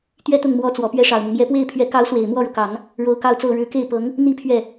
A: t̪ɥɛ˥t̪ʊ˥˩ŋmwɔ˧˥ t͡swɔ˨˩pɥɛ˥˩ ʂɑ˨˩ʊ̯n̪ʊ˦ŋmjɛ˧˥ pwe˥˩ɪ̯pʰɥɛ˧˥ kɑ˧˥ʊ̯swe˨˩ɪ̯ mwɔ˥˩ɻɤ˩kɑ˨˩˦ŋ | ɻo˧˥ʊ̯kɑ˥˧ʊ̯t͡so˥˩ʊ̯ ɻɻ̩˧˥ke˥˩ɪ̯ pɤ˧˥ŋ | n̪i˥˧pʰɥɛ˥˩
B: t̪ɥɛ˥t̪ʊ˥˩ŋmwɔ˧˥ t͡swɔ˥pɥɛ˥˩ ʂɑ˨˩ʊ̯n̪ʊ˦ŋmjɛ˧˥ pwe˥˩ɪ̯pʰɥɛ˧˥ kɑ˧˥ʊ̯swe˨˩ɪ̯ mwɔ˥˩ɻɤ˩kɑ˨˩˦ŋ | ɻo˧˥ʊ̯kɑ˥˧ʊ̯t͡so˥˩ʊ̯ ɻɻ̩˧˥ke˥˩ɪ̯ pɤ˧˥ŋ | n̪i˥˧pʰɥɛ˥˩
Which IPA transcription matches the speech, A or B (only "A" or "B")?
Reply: A